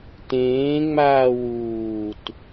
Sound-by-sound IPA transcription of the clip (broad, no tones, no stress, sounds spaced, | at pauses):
t ẽː ŋ͡m aː w uː t